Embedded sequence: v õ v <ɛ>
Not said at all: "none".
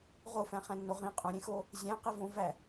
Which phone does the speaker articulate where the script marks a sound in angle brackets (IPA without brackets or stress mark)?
æ